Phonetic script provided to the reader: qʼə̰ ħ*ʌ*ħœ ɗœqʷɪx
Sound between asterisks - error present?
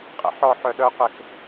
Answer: yes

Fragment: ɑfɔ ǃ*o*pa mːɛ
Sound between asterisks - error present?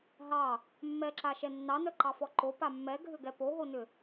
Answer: no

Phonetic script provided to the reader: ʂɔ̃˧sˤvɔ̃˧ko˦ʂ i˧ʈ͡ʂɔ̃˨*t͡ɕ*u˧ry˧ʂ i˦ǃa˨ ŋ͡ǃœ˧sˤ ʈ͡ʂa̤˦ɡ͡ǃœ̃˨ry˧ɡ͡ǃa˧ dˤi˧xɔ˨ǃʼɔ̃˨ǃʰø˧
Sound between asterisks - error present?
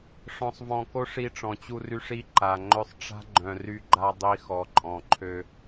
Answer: no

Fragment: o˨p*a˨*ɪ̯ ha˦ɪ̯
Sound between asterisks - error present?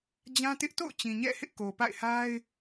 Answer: yes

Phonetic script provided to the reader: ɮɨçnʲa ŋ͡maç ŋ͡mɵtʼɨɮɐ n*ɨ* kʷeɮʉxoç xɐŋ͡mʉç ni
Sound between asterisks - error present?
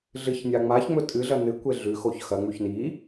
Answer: no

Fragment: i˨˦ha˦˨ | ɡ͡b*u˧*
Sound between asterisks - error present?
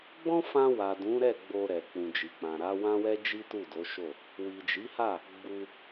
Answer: no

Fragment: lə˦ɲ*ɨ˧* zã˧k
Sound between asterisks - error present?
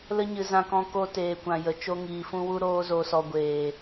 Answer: no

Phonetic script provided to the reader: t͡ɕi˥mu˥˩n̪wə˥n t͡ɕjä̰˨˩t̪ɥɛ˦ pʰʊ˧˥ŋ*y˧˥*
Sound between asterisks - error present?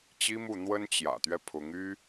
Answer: yes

